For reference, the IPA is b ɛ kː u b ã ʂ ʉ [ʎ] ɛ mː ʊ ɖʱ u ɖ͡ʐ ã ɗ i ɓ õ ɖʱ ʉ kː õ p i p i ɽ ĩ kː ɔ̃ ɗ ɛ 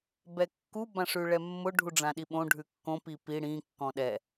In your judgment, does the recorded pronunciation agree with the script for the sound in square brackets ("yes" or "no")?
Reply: no